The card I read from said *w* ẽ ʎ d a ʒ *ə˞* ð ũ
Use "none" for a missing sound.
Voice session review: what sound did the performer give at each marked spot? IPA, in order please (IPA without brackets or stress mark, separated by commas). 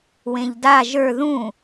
w, ə˞